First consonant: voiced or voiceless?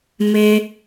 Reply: voiced